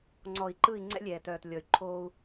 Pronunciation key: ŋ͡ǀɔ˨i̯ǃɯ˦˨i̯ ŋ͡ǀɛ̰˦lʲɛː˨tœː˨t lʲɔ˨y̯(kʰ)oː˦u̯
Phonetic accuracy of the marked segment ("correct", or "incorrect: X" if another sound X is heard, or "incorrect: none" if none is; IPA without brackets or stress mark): incorrect: ǃʰ